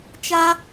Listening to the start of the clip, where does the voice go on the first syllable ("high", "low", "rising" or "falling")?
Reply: high